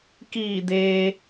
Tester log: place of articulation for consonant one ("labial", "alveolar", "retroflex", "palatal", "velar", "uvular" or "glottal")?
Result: velar